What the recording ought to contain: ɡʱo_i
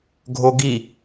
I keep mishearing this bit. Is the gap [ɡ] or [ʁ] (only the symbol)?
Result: ɡ